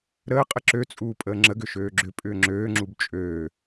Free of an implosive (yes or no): yes